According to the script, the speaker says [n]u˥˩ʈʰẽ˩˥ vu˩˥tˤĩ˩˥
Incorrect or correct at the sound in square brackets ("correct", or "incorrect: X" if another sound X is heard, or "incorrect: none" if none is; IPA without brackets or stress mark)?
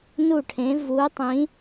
correct